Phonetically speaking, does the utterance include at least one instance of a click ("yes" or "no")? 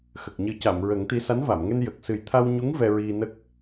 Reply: no